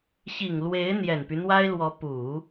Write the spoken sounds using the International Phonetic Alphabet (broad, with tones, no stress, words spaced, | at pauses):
ɕi˨˩ŋlwe˧˥ɪ̯ n̪jɛ˨˩npy˦n̪wa˥ɪ̯lwɔ˧˥ pu˨˩˦